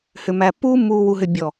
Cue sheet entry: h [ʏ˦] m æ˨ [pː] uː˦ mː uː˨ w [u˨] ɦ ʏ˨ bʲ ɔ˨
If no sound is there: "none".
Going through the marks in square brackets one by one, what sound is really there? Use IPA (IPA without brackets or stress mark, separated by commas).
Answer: ʏ˨, pː, u˨